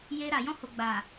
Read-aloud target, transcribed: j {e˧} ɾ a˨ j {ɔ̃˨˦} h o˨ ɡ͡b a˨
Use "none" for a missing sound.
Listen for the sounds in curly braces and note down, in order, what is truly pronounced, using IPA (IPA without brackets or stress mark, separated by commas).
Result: e˧, ɔ̃˧